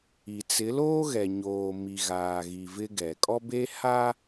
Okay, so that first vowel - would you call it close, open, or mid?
close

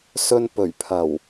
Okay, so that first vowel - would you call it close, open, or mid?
mid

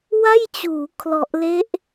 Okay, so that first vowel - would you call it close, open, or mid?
open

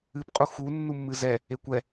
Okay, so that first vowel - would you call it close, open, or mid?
close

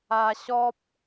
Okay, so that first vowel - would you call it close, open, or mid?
open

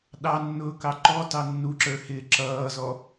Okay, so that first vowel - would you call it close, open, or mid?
open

